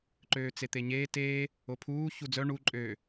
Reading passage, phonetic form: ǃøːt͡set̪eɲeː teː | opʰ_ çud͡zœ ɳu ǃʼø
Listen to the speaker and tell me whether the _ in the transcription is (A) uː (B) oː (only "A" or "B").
A